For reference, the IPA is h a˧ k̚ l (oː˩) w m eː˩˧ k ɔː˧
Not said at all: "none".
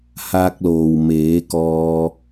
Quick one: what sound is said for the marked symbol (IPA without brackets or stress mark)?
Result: oː˩